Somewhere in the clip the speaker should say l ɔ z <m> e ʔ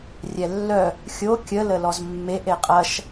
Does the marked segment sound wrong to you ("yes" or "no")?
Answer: yes